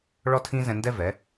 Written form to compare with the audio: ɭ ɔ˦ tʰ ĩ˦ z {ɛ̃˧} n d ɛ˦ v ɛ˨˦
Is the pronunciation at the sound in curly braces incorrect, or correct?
correct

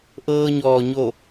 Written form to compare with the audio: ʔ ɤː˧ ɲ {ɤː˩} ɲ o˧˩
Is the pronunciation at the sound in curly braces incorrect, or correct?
incorrect: ɔː˩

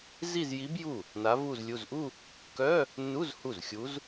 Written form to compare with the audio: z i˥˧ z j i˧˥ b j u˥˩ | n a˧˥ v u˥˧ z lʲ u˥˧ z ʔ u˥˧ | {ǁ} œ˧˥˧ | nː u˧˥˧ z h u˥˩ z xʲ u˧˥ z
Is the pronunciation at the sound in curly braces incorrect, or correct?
incorrect: k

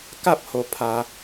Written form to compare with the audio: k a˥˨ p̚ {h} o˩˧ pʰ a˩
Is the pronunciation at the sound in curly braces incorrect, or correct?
correct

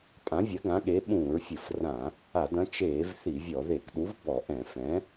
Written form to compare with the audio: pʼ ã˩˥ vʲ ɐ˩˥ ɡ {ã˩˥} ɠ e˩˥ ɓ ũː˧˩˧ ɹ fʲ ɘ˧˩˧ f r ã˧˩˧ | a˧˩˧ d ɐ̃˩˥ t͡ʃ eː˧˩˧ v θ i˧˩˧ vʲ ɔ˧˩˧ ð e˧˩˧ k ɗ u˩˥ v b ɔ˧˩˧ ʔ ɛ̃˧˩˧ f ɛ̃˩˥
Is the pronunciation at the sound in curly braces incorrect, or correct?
correct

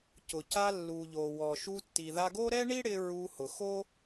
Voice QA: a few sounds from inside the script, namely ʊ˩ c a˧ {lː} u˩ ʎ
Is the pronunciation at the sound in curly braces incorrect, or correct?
correct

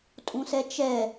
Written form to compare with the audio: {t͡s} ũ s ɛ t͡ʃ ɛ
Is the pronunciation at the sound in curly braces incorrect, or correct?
incorrect: tʼ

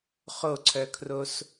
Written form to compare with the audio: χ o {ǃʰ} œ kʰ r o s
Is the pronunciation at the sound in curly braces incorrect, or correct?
incorrect: ǀʰ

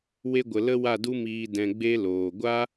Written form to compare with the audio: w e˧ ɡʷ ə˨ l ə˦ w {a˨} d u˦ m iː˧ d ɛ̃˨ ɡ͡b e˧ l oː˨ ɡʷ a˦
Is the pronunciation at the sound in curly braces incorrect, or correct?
incorrect: a˦˨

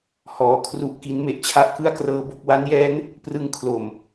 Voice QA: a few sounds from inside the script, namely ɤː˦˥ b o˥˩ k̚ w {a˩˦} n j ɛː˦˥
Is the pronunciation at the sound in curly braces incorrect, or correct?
incorrect: a˦˥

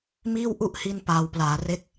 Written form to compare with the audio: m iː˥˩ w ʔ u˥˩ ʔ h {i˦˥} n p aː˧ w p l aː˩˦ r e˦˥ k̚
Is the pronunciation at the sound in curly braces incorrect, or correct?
incorrect: i˧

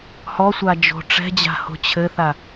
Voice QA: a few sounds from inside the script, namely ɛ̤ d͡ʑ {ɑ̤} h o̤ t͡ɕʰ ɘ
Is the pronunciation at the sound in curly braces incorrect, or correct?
incorrect: a̤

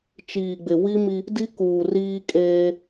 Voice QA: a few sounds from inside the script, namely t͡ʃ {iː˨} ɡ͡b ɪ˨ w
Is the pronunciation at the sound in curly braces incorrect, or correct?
correct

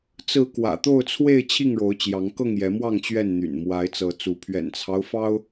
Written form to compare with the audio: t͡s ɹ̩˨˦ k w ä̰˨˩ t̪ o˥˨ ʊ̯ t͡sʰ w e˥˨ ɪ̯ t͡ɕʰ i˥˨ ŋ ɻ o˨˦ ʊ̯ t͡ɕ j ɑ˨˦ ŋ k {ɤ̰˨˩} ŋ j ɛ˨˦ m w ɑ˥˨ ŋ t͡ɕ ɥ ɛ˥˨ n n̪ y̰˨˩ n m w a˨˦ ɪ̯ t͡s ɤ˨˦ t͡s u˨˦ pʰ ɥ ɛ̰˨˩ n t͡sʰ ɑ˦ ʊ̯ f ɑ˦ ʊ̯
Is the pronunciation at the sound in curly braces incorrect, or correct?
incorrect: ɤ˥˨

